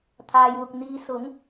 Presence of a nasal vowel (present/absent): absent